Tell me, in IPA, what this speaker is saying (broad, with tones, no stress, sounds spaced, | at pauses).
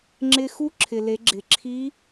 ŋ͡ǁ ɪ˧ x u˥ ǁʰ ɪ˩ l e˩˧ ɡ͡ǁ ɪ˩ ǁʰ i˧˥